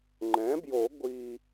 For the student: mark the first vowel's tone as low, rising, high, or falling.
rising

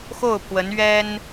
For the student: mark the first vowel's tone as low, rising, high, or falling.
falling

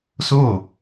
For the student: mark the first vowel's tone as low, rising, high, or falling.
falling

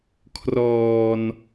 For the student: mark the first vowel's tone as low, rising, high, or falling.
low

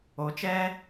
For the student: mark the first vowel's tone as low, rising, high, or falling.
rising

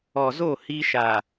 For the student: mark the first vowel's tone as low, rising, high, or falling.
low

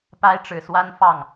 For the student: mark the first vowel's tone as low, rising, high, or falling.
high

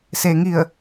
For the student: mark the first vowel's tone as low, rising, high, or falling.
low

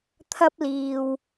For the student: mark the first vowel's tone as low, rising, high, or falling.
high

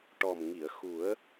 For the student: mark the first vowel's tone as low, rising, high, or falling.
low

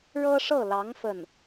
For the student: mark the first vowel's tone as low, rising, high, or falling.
high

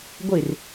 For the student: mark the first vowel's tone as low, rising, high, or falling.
falling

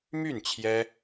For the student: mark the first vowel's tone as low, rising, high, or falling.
falling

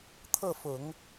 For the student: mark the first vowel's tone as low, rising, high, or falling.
falling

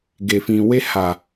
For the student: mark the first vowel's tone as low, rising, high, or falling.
low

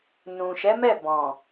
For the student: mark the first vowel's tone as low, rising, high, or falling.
low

